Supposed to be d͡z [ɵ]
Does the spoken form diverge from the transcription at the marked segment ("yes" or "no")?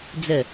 yes